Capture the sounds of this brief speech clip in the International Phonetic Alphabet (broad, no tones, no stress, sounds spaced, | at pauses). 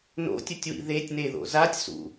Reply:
n o̰ tʲ ʊ tʲ w ḭ ð e tʲ n e ð o̰ z a tʲ s ṵ